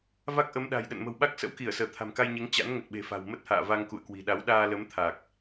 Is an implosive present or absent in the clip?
present